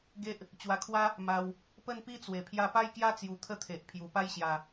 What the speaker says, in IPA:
ɡ e˦ ʔ | t͡ɕ w a˧ kʰ w a˦ | m a˧ w | p ə˥˧ n p i˦ t͡s w e˨˩ pʰ j a˧ p a˥˧ j k j a˥˧ t͡s j u˧ t̪ʰ ə˥˧ t̪ʰ e˨ ʔ pʰ j u˨˩ p a˥˧ j ɕ j a˨˩

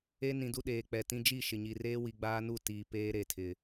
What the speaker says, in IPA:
e˦ n ĩ˨ d u˦ ɗ eː˨ k͡p ɛ˨ t ĩ˦ d͡ʒ i˦˨ ʃ ɪ˨ ɲ i˨ r eː˦ w i˨ ɡ͡b aː˦ n u˦˨ t iː˨ p eː˦ ɾ e˨ tʰ ɪ˨

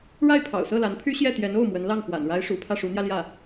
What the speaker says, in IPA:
ɻ a˥˩ ɪ̯ pʰ ɑ̰˨˩ ʊ̯ s ɤ˥˩ l a˧˥ n pʰ y˥ ɕ j ɛ˥˩ t̪ j ɛ˧˥ n o˥˩ ʊ̯ m w ə˧˥ n l ɑ˥˩ ŋ f w a̰˨˩ n ɻ a˥ ɪ̯ ʂ ṵ˨˩ pʰ ä˥˩ ʂ u˧˥ n̪ j ä˧ l j ä˥˩

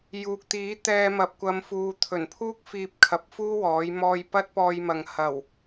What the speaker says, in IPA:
j uː˨ k̚ t̪ iː˨˥ t̪ ɛː˧ m ɐ˨ p̚ kʷ ɐ˨˧ m f uː˨ t̪ʰ ɵ˨˩ n pʰ uː˥ k̚ f iː˧ p̚ kʰ ɐ˨˥ p̚ f uː˥ w ɔː˨˥ j m ɔː˧ j p ɐ˥ t̚ p ɔː˧ j m ɐ˨ ŋ h ɐ˨˩ w

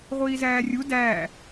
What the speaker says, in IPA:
ʁʷ iː z æː rʲ u d æː

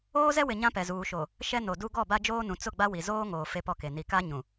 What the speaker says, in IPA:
oː˦ z ɛ˦ w ɪ˨ ɲ ã˦ p ɛ˨ z uː˨ ʃ o˨ | ʃ ɛ˦ n o˨ d u˦ ɡ ɔ˦˨ b a˦ d͡ʒ oː˦ n ũ˨ t͡s ʊ˦˨ ɡ͡b a˦ w i˨ z oː˦ ŋ oː˨ f e˦ p ɔ˦˨ k e˨ n i˨ k a˦ ɲ ũ˨

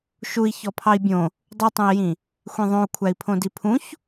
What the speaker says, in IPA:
ʃ u i̯ ç ɔ pʰ ɑ i̯ bʲ õ | dˤ u tˤ ũ i̯ j ĩ | xʷ ẽ ðˤ õ u̯ kʷʰ æ i̯ pʰ õ d i pʰ ũ ç

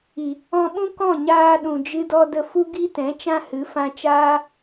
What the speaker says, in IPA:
i˨ | ɔ̃˧ ɓ ũ˦ k ɔ̃˦˨ ɲ aː˧ ɗ ũ˨ d͡ʒ ɨ˧ d ɔ˧ d ə˧ f u˦ ɡ i˦ t ɛ̃˨˦ t͡ʃ ã˦ h ɨ˨˦ f ã˧ t͡ʃ aː˦

